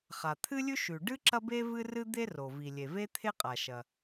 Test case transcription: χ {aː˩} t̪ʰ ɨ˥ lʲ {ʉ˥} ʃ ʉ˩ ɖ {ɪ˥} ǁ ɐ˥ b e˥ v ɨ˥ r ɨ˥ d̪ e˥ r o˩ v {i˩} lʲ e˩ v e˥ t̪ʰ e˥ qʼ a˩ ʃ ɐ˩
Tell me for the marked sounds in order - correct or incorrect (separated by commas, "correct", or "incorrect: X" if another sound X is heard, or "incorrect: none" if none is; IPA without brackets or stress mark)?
incorrect: a˩, correct, incorrect: ɨ˥, correct